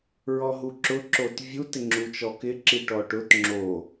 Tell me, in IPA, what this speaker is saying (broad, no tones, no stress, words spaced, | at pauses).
ɹɔɦuǁʊ ǁotvʲu tɪŋ͡ǁut͡ʃɔkɪ ǁiʈɔʈʊt ŋ͡ǁo